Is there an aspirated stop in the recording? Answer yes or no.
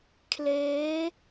yes